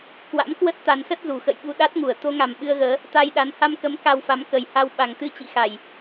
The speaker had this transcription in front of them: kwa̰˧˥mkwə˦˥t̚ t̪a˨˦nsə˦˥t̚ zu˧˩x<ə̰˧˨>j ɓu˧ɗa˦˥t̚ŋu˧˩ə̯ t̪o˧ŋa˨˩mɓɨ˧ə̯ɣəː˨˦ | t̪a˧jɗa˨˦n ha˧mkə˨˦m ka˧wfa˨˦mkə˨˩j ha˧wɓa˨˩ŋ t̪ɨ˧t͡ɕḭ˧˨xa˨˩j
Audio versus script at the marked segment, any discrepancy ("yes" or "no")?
no